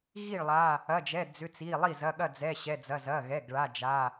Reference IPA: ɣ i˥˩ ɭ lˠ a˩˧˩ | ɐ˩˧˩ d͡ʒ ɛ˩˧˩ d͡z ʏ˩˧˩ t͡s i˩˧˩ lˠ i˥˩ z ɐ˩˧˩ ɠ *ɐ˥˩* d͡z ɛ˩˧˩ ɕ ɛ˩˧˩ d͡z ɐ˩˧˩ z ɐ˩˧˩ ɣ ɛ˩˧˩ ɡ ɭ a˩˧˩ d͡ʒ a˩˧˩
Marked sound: correct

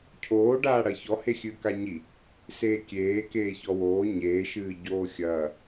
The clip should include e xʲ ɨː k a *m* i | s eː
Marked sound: incorrect: ɲ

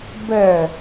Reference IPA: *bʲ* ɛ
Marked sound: incorrect: b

